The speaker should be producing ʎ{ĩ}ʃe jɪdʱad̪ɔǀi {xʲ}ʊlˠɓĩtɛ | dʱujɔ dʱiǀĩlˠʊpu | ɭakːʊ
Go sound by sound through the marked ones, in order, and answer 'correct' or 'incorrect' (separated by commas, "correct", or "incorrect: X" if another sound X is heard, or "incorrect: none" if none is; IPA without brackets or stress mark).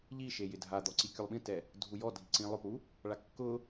incorrect: i, incorrect: kʲ